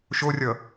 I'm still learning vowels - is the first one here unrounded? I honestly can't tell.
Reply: no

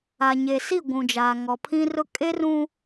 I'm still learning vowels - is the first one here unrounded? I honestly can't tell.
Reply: yes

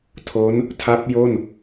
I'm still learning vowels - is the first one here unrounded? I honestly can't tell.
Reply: no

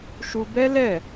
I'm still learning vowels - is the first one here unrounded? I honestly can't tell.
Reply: no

